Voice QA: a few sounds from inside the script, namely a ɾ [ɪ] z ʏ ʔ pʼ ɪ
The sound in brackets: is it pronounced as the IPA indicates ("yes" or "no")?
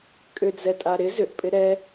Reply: yes